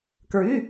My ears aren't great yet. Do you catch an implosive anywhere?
no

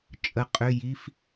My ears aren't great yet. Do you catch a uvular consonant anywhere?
yes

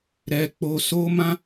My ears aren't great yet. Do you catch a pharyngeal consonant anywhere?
no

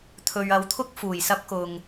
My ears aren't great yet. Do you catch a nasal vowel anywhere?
no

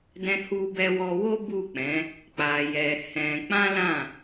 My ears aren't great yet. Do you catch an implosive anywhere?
no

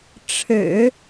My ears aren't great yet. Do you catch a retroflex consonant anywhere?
yes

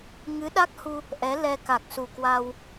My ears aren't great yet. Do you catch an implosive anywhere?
yes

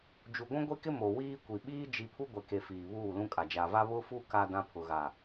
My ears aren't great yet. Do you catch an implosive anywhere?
yes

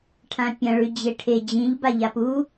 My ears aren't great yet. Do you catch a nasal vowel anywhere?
yes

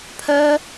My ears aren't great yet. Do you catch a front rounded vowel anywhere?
yes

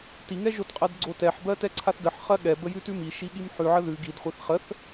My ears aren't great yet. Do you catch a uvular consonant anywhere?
yes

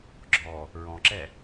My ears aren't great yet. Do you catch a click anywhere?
yes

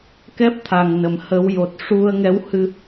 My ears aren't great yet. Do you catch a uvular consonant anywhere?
no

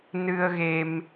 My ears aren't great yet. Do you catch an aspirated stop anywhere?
no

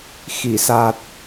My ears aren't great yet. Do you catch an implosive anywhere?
no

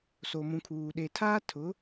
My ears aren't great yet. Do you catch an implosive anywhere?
yes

